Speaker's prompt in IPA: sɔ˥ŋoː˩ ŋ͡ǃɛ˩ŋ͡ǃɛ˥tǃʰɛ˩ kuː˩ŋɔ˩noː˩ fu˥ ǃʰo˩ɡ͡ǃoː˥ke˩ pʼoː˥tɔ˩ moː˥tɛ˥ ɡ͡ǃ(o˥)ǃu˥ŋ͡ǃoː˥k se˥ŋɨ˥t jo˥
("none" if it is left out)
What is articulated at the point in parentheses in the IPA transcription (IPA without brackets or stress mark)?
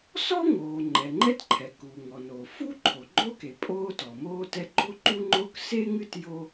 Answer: o˥